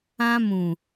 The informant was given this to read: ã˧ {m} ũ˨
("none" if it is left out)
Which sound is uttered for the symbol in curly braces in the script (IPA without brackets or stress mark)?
m